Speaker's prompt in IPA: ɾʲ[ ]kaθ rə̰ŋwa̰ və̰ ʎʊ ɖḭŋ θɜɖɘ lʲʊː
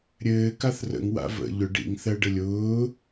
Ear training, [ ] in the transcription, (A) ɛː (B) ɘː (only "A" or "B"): B